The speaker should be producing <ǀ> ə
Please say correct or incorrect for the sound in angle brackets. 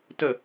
incorrect: t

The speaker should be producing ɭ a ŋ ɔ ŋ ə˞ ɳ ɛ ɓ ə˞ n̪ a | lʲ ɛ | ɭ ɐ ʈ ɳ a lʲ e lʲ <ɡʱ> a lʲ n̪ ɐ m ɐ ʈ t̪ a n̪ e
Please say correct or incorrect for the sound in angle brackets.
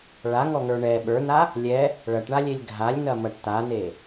correct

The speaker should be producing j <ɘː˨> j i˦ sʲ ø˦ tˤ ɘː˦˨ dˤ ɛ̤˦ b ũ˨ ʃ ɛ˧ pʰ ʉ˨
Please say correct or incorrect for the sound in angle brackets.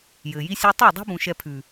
correct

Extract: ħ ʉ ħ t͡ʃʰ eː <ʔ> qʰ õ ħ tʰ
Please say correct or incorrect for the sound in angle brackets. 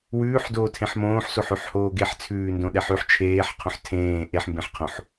incorrect: ħ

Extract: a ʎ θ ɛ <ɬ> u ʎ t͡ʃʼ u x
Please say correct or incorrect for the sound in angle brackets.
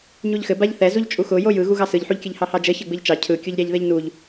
incorrect: z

